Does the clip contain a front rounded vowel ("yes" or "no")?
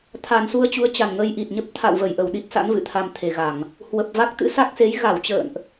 no